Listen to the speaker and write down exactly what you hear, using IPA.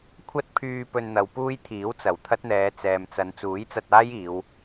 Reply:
kʷʰ ɐ˥ t̚ pʰ yː˧ p ɵ˧ n n̪ ɐ˨˧ w p uː˥ j t̪ʰ iː˨˥ w t͡s ɐ˨˩ w t̪ʰ ɐ˥ t̚ n̪ ɛː˨˧ t͡s ɛː˨ m t͡s ɐ˨˧ n t͡s uː˨˥ j t͡s ɐ˧ t̚ aː˥ j iː˨˧ w

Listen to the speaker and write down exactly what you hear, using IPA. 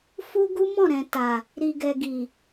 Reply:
f u˦ ɡ u˦ m ɔ̃˦˨ ɾ ɛ̃˨ t a˨ | ɾ i˨ ɡ ɛ˨ ɡ i˨

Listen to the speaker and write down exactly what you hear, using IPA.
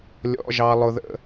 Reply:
lʲ ɔ̰˩˧˩ ʒ ɑ˩ lˠ ʊ˩ ð ə̰˩

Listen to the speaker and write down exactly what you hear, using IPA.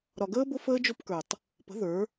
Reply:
ɾ ɒ˨ ɡ əː˦ b ʊ˦ f əː˦ d͡ʒ o˦ p k ə˞˨ tˤ | p ə̤˨˦ ð ə˞˨˦

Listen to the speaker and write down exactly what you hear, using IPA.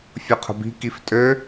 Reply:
fʲ o qʰ ə̤ b i̤ k i f tʼ ø

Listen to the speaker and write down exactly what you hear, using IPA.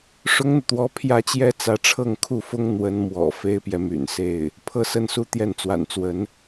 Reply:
ʂ ʊ˥ ŋ n̪ u˨ t̪ w ɔ˧˥ pʰ j ä˥ t͡ɕ j ɛ˥ t͡s ä˧˥ ʈ͡ʂʰ ɤ˥˧ ŋ kʰ u˥˩ f ʊ˥ ŋ n̪ w ə˧˥ n m w ɔ̰˨˩ f e˥ ɪ̯ p j ɛ˨ m y̰˨˩ n s e˥˩ ɪ̯ | pʰ ɤ˥˧ s ə˥˧ n s u˥˧ t̪ j ɛ˥˩ n t͡s w a̰˨˩ n t͡s w ə˧˥ n

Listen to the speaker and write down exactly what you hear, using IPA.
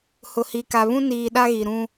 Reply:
h ʊ˨ h i˨ k a˨ β ũ˦ n iː˨ ɗ a˦ ɣ i˨ ɾ ũ˦

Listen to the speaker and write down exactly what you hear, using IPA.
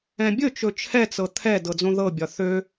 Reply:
ɛ̃ bʲ ɵ t͡ʃ ɵ t͡ʃʰ ɛ t͡s ɤ t̪ʰ ɛ d ɤ d͡z õ ð ɤ bʲ ɒ θ ø

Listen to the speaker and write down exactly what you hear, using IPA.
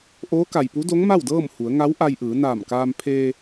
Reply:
ʔ oː˧˥ k a˩ j p u˧˥ d o˧˥ ŋ m a˥˨ w d ɤː˥˨ m h u˩˧ ə̯ ŋ a˧˥ w ʔ a˧ j ʔ ɯː˩˧ n aː˧˩ m k aː˧ m pʰ eː˧

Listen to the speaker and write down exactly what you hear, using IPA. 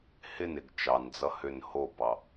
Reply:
h ɪ n ɪ ɡ t͡ʃ ɑ n d͡z ʌ h ʏ n h o b ɑ

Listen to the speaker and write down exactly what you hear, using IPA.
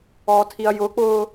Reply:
ɔː tʰ i ɐ̯ j ʊ k͡p ʊː

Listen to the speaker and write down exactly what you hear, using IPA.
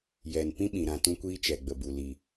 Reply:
j ɛ˨ n p ĩ˦ ɓ ĩ˨ ɾ ã˧ t ũ˦ kʷ iː˦ t͡ʃ ɛ˨ ɡ͡b ə˨ b u˨ l i˨

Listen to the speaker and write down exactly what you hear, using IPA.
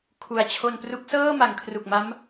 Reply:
kʰ u˨˩ a̯ t͡ɕʰ o˧ n p r u˦˥ k̚ s ɤː˥˩ m a˩˦ ŋ kʰ r u˨˩ k̚ m a˦˥ m

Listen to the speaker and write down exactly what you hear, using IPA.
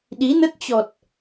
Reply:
ɗ i˨˦ n ə˦˥ t̚ t͡ɕ ɔ˨˩ t̚

